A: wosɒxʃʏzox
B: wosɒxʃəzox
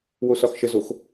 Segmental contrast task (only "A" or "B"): B